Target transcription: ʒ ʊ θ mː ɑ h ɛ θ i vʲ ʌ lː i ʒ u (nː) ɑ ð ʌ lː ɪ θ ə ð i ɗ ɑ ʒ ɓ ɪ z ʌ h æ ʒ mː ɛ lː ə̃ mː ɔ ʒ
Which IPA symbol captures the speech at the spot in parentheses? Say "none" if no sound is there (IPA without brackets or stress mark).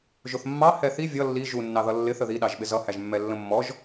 nː